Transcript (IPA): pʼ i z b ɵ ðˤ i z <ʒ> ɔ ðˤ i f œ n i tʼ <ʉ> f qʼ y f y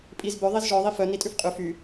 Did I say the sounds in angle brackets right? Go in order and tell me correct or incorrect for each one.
correct, correct

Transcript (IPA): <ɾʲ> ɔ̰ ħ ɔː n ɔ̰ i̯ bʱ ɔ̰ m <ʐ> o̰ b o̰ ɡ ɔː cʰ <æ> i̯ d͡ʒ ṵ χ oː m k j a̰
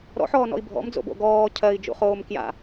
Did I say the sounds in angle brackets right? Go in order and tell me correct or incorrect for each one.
incorrect, incorrect, incorrect

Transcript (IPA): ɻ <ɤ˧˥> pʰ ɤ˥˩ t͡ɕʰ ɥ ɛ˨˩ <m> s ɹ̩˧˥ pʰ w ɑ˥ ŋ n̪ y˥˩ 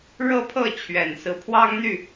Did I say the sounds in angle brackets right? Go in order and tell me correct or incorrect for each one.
incorrect, incorrect

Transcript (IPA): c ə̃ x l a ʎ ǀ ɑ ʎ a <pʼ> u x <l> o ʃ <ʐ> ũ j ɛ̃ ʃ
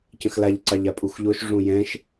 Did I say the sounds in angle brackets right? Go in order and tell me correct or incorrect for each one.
correct, incorrect, correct

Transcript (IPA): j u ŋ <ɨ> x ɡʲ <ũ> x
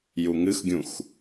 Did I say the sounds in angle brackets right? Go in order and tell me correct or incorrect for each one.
correct, correct

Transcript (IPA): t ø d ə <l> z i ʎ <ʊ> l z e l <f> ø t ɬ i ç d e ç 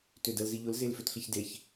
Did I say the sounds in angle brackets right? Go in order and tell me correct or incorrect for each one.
correct, correct, correct

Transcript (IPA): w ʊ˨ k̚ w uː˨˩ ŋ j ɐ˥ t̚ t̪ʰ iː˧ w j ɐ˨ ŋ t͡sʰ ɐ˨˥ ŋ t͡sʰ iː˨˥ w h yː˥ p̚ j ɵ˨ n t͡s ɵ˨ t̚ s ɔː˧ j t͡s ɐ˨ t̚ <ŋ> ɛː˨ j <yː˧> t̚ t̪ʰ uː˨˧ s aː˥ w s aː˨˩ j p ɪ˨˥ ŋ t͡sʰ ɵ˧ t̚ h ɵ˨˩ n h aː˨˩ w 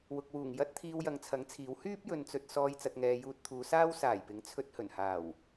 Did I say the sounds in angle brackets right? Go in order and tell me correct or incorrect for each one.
correct, incorrect

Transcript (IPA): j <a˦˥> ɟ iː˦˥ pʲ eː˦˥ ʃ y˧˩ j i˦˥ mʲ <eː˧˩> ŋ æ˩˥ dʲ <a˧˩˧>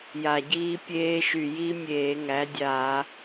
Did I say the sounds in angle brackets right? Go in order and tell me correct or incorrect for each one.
incorrect, incorrect, correct

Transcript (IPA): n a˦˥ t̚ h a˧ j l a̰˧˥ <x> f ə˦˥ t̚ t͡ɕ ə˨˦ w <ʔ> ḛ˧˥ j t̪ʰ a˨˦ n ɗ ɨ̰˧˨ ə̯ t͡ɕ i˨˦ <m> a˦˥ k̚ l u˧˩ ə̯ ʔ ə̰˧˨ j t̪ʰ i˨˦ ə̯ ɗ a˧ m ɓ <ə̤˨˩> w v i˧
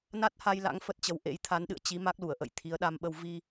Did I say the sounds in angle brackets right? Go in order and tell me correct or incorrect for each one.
incorrect, correct, correct, incorrect

